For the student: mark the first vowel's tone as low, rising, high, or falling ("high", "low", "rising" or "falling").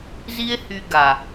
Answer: high